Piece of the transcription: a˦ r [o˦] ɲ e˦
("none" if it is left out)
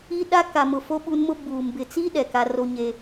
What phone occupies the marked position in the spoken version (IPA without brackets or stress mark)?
o˦